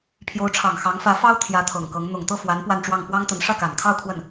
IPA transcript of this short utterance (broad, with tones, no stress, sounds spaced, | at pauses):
pʰ j o˧˥ ʊ̯ ʈ͡ʂʰ ɑ˨˩ ŋ x ɑ˧˥ ŋ f ä˧˥ f ɑ˥ ʊ̯ t̪ʰ j ä˧˥ t̪ʰ ɤ˨˩ ŋ k ɤ˧˥ ŋ n̪ ʊ˨˩ ŋ t̪ ɤ˥˩ f w a˧˥ n p w a˥˧ n ʈ͡ʂ w ɑ˥˩ ŋ p w ɑ˥ ŋ t̪ ə˧˥ n ʂ ä˥˩ k a˨˩ n kʰ ɑ˥˧ ʊ̯ kʰ w ə˥˩ n